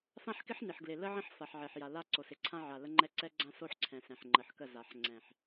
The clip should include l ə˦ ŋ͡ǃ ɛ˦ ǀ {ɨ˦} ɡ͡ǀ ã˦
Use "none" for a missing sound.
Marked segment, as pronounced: ɛ˦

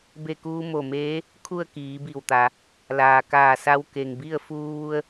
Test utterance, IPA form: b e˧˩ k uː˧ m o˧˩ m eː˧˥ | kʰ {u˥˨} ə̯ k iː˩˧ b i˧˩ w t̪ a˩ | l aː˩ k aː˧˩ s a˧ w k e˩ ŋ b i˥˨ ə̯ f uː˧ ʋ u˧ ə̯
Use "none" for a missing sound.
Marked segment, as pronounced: u˥˨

